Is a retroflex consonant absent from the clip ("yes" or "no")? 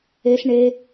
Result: no